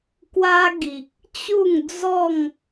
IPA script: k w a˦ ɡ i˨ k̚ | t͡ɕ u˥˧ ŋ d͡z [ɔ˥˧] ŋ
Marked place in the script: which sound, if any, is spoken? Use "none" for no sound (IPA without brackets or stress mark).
ɔ˥˧